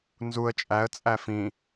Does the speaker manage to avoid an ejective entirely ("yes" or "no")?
no